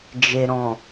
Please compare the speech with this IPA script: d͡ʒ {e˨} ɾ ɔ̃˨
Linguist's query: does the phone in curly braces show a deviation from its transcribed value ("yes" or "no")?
no